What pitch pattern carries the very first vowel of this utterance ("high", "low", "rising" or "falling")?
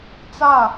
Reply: falling